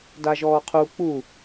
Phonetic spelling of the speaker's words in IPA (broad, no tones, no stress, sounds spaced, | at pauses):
d a ʒ ɔː qʰ u k͡p u